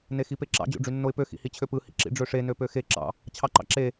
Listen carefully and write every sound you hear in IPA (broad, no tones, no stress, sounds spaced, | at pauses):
n e x i p e ǁ ɑ̰ d͡ʑ o̰ ɖ͡ʐ y nː o ɪ̯ p ø x ḭ h i t͡ɕʰ ø p ɯ h ḭ ǁ ḭ ɖ͡ʐ ø ʂ e n ø p ø x e ǁ ɑ̰ | t͡ɕʰ ɑ ǃ ɑ̰ ǁ e